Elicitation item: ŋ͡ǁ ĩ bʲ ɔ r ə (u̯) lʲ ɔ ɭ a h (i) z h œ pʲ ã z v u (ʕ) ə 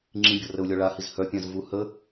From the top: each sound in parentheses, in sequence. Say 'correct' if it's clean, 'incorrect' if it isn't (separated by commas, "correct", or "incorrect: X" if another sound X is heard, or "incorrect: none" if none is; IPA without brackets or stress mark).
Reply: correct, correct, incorrect: h